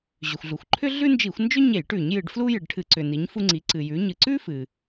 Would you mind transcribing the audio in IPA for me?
ʑ ʏ˩ xʷ ɮ u˩ xʷ ǃʰ ʏ˥ ɮ ʉ˥ n d͡ʒ i˧˩˧ xʷ n d͡ʒ ʏ˥ ɲ e˧˩˧ j ʈ ʉ˧˩˧ ɲ j ɨ˧˩˧ ɖ f l u˥ j ɨ˩ ɖ ʈʰ ɨ˧˩˧ ǀ ʏ˩ n i˩˧ ɲ f u˧ ŋ͡ǀ i˩˧ ǀ ɨ˩ j ʉ˩˧ ɲ ɨ˩ ǀ ʉ˥ f ɨ˩

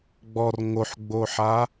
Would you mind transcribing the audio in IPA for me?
ɡ͡b ɔ r ŋ o ħ ɡ͡b o ħ a

